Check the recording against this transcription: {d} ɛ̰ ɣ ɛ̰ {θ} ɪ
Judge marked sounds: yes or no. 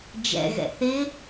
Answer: no, yes

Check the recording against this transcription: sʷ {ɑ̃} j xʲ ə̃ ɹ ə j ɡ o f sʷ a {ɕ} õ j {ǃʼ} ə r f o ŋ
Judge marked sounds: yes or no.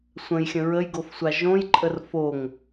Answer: no, no, yes

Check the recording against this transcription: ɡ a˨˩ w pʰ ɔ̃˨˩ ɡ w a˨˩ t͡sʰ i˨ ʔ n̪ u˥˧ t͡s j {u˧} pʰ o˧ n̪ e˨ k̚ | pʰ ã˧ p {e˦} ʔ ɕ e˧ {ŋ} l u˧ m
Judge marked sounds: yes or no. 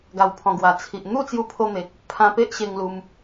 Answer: yes, yes, yes

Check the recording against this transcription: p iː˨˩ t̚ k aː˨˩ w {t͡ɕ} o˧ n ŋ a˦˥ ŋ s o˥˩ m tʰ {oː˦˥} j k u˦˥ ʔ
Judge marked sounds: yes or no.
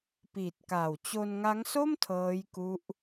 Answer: yes, no

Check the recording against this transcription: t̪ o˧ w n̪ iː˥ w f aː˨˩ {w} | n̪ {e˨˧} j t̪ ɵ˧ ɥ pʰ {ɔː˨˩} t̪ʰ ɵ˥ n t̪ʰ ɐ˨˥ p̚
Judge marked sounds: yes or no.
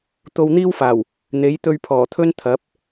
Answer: yes, no, yes

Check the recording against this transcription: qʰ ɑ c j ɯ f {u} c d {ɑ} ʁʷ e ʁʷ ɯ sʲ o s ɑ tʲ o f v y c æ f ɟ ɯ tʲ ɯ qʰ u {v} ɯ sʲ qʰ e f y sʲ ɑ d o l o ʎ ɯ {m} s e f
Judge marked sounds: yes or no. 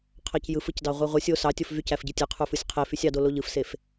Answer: no, yes, no, no

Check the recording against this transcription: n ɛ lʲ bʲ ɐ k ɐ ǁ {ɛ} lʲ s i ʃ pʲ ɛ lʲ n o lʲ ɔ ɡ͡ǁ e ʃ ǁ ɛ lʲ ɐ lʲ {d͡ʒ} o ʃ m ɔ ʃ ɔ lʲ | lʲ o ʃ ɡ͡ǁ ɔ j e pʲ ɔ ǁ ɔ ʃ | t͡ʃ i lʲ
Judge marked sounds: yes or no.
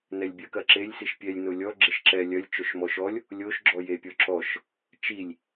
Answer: no, no

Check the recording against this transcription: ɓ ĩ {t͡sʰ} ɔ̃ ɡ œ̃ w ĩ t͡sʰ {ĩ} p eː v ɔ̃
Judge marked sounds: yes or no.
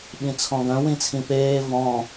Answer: yes, yes

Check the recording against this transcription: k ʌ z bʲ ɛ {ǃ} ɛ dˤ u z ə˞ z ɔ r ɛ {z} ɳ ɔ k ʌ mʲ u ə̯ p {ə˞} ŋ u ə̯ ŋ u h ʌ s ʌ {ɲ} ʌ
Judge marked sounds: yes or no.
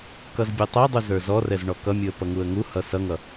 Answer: no, yes, no, no

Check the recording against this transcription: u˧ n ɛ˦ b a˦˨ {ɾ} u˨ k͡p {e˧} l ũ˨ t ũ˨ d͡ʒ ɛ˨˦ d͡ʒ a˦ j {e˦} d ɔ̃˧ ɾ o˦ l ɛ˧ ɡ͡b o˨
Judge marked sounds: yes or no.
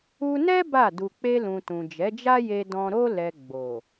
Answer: no, yes, no

